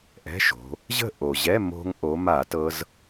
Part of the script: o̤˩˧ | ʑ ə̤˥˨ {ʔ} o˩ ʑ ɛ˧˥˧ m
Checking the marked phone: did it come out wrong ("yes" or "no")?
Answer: no